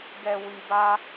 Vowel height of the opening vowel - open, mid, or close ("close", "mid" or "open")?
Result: mid